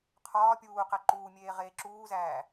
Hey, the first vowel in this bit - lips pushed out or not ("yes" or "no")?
yes